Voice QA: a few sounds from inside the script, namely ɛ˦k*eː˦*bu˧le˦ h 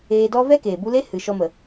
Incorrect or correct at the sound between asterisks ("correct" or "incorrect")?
incorrect